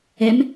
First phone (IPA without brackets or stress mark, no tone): ɛ